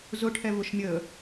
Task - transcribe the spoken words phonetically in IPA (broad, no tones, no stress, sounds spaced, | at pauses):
z ʊ ʈʰ ɛ v ʊ ʃ mʲ əː